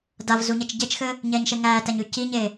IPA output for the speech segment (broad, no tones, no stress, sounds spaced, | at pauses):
d a v z u ɲ ɛ t͡ʃ ɟ e t͡ʃ x ɘ | ɲ ɛː ɲ ʃ e ŋ æː t æ ɲ ʉ c i ɲ e